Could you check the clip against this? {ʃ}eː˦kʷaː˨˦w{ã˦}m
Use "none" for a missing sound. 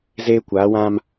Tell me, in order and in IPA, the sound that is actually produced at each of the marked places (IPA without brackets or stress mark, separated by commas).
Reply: z, ã˦